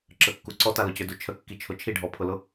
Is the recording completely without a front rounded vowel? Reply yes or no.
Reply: no